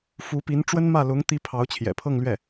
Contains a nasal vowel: no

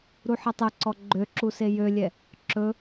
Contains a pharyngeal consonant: yes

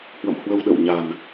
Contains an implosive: yes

